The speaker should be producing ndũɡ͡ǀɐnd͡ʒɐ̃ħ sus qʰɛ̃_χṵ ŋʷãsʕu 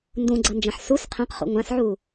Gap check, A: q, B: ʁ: A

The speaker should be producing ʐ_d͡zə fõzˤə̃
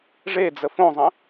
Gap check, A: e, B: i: A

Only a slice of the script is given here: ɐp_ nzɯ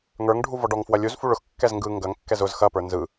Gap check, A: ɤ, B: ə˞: B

